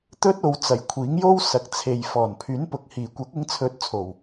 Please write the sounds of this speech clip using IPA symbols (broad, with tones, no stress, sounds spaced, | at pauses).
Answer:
t̪ ɵ˥ t̚ o˨˧ w t͡s ɐ˨ j kʷʰ iː˨˥ ŋ j o˥ w s ɐ˨ k̚ t͡sʰ e˨ j f ɔː˨˩ n pʰ yː˨˥ n p ʊ˨ k̚ h iː˨˩ kʷ ɐ˨˥ k̚ ɪ˧ ŋ t͡sʰ ɵ˨˥ t̚ t͡sʰ o˨˩ w